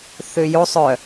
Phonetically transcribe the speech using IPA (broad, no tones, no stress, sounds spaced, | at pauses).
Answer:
θ ʏ j o sˤ œ